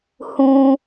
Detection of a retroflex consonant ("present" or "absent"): absent